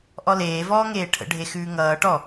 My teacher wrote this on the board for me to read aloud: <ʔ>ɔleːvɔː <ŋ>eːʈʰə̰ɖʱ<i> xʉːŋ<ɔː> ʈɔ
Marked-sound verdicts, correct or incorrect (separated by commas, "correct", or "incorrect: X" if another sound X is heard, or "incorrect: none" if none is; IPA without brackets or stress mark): correct, correct, incorrect: e, incorrect: ʌː